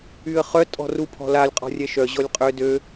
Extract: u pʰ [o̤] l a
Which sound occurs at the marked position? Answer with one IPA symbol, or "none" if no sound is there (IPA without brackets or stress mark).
ɔ̤